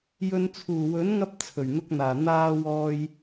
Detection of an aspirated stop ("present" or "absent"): present